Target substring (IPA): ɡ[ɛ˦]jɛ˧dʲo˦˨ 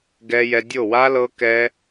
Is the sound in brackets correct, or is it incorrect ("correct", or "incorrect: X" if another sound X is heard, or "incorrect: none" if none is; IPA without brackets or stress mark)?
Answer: incorrect: ɛ˧